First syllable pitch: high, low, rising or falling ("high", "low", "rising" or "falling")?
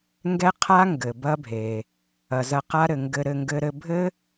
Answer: high